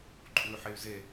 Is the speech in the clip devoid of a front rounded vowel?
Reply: no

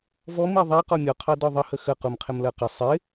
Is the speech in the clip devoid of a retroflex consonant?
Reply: yes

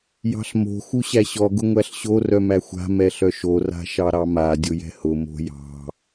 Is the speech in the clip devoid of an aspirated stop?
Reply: yes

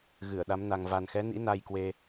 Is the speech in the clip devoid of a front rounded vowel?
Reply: yes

